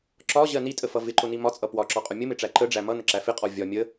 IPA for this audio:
ǁɒʑɜ nitʼəfʌ vɪǃʊni mɒt͡sʼʌ pwɒǁɒqʼʊ mʲəmɪʈ͡ʂæ ǃəɖ͡ʐæ mʌnəǁæ fɪqʼɔ vʲɒ mʲə

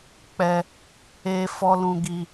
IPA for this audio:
k͡pɛ˦ | e˧ fɔ˦lũ˦ɡi˦

